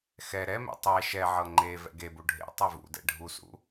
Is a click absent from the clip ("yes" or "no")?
no